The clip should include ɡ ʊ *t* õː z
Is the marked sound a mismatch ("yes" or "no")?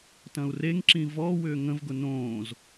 yes